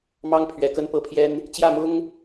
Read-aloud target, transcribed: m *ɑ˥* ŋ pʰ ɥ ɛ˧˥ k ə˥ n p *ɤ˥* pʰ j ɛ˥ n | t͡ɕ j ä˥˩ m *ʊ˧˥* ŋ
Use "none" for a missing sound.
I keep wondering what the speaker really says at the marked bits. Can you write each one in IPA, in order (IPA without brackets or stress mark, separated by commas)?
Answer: ɑ˥, ɤ˥˩, ʊ˥